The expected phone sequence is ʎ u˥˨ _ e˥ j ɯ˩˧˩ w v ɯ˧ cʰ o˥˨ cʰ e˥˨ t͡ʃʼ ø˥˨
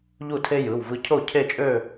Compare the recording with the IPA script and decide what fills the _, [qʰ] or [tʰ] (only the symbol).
tʰ